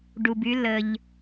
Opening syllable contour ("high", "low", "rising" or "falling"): low